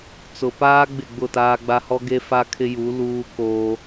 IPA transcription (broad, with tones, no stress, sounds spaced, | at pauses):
t͡s ʊ˨ p aː˦ ɡ͡b ɪ˦˨ ɡ͡b ʊ˦˨ t aː˦ ɡ͡b a˦ h ɔ˦ ɡ e˦ f a˦ kʰ ɪ˦ j u˨˦ l uː˦ k oː˦